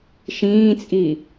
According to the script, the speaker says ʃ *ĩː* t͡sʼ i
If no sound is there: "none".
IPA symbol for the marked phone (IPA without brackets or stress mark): ĩː